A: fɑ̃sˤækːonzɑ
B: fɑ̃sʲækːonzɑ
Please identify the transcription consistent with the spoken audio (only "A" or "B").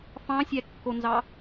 B